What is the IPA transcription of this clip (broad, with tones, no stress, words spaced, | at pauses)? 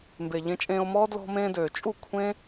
mbe˨ʎẽ˧t͡ʃʼẽː˧o̯mɔː˦ dlɔ̤˧mẽː˧døː˨ t͡ʃʼu˦˨ kʷʰẽː˦